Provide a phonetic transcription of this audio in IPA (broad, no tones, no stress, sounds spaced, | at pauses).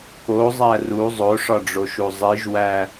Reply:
k o zˤ æ r u zˤ o ʂ ɒ ɖ͡ʐ o ʃ u zˤ i ʒ w æ